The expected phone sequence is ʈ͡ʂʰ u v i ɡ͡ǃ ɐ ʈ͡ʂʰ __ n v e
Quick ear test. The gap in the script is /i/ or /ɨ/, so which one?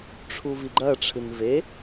ɨ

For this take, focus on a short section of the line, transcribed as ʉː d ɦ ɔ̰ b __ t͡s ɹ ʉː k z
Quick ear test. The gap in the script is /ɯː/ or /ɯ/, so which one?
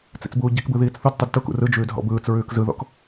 ɯː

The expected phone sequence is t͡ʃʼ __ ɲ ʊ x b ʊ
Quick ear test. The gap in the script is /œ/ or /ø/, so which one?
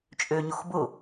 ø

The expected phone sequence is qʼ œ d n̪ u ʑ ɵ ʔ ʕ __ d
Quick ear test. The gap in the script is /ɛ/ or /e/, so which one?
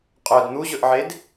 e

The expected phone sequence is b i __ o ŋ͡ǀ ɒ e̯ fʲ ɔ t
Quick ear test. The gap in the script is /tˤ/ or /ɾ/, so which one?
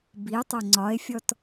tˤ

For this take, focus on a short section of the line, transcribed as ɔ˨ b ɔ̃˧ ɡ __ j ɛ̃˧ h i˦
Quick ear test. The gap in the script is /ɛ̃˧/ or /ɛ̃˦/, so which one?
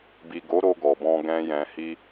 ɛ̃˦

